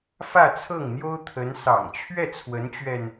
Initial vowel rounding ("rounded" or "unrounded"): unrounded